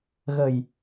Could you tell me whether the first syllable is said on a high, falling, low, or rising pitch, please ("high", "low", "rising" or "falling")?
low